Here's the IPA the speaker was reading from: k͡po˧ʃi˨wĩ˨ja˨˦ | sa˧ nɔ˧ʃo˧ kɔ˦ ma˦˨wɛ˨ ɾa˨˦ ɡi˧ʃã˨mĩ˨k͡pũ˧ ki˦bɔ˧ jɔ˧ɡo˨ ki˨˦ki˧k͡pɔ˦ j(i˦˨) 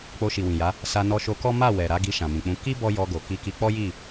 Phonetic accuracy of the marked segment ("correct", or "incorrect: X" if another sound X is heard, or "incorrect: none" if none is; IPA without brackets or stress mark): correct